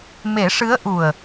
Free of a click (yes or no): yes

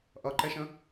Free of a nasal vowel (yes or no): no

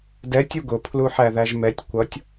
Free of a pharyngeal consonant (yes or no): no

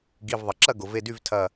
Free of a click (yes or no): no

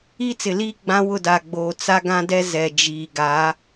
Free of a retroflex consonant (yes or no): yes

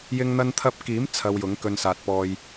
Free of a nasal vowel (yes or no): yes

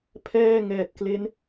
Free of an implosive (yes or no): yes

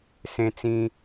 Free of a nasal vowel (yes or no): no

